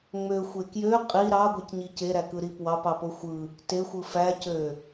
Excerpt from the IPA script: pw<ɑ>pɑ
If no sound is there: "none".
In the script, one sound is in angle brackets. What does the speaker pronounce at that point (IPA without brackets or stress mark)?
ɑ